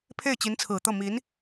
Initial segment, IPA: pʰ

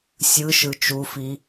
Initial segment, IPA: sʲ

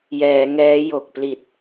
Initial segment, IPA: j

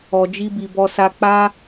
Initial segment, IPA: ɔ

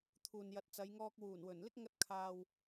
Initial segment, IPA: t̪ʰ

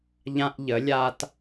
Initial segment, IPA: ʎ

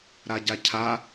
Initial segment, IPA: ɾ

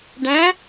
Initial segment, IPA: ɖ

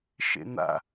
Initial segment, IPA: ʃ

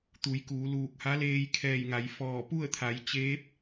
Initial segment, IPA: t̪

